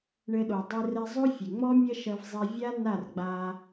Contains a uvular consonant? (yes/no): no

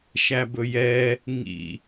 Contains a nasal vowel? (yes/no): no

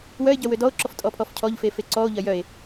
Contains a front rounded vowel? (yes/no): yes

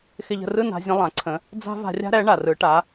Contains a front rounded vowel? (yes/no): no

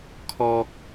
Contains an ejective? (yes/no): no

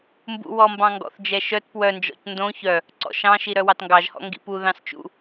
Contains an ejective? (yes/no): no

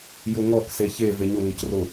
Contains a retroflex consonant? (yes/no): no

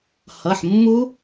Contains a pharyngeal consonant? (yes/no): yes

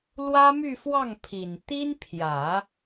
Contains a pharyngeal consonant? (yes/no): no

